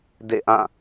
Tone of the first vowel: falling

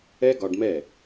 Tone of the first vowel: high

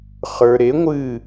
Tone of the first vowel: low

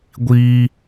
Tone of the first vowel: high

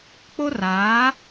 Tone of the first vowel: high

